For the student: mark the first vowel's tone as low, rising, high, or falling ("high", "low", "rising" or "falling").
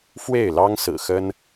falling